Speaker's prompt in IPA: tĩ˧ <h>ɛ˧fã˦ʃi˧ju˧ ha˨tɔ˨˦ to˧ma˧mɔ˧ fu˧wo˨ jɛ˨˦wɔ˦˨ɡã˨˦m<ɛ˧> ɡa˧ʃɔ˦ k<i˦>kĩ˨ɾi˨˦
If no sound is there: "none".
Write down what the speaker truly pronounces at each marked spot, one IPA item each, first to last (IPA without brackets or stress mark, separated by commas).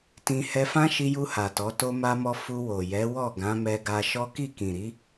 h, ɛ˧, i˦˨